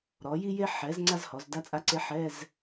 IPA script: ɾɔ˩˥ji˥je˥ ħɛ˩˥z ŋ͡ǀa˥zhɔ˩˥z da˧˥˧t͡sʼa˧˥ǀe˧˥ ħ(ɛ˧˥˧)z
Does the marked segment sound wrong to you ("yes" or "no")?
no